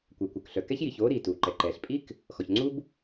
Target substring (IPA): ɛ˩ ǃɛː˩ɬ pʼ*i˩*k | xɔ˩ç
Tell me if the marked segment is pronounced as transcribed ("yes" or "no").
no